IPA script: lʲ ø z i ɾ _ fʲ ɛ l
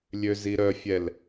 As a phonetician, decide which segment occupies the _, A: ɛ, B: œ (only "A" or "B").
B